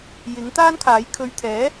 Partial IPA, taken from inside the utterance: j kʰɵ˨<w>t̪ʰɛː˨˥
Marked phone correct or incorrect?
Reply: incorrect